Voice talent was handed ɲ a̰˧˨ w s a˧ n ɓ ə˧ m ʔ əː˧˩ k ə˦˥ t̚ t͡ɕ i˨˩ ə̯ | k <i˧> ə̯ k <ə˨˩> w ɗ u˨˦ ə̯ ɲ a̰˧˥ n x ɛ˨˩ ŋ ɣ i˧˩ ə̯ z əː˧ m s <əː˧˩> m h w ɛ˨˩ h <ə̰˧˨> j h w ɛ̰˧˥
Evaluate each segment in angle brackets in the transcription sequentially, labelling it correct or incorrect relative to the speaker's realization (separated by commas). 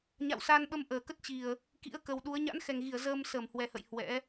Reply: incorrect, correct, correct, correct